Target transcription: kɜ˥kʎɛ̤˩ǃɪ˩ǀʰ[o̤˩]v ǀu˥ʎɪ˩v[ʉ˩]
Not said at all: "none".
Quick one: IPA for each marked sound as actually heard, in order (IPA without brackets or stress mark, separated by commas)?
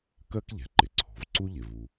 o̤˩, u˩